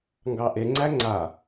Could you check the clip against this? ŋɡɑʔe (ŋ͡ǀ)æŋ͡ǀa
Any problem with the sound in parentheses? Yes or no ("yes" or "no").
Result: no